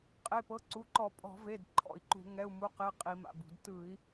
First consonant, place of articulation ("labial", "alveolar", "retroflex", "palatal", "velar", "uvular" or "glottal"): uvular